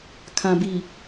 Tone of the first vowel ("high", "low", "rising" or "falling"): low